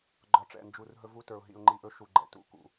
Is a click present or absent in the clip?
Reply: present